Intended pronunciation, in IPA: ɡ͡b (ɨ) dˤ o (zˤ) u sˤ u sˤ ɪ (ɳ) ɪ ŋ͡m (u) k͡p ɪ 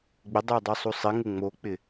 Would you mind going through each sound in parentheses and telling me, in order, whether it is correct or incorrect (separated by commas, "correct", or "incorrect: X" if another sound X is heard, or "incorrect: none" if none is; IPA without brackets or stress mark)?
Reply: incorrect: ɪ, incorrect: dˤ, incorrect: ŋ, incorrect: o